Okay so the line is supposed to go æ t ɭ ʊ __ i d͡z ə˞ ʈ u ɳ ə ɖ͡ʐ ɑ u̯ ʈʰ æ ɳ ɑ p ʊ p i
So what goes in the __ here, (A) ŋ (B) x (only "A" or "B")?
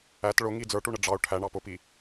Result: A